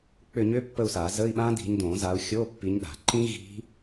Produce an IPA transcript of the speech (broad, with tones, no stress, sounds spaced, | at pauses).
k͡p ʏ˦˨ ɲ ʏ˦˥ pː ə˦˨ u̯ s a˨˩˦ z ə˧˥˧ i̯ ɓ ã˦˥ d i̤˨˦ ɲ d õ˨˩˦ z a˨˦ u̯ xʲ o˧˥˧ pː i˨˦ ɲ ɗ a̤˨˩˦ ǃ ĩ˦˥ ɣ i̤˦˥